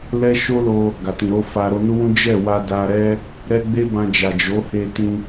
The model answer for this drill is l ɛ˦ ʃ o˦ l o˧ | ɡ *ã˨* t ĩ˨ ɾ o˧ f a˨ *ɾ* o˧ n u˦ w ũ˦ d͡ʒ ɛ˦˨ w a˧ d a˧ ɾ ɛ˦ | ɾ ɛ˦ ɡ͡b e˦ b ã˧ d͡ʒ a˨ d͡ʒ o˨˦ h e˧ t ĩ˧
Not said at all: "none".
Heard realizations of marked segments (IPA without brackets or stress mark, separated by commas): a˨, ɾ